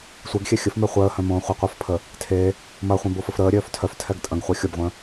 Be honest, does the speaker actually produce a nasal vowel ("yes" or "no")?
yes